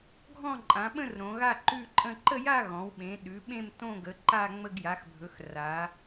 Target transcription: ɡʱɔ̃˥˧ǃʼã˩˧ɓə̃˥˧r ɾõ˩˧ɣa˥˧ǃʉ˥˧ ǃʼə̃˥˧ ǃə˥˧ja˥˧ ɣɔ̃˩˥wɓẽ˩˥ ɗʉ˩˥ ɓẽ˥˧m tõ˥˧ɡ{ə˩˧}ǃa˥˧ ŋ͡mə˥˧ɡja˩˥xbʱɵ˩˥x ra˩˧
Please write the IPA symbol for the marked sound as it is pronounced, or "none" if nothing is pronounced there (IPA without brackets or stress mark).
ə˩˧